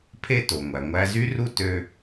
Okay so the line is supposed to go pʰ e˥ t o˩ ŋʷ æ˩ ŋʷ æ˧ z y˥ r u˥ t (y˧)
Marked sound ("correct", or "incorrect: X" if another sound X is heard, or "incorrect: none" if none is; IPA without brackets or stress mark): incorrect: ø˧